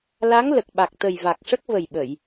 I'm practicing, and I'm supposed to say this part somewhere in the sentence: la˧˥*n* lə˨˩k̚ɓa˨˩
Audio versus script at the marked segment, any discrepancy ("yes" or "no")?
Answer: yes